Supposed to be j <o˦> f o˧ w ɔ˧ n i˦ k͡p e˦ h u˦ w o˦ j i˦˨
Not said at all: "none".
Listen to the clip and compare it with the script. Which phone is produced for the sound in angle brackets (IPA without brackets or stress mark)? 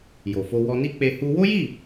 o˨